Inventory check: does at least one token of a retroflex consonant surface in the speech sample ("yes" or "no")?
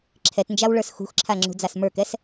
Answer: yes